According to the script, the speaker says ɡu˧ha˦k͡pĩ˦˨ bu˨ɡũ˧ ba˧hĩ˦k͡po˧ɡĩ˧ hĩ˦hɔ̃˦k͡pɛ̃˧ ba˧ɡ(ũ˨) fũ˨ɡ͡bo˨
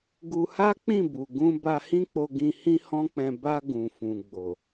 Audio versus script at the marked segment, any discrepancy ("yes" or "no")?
no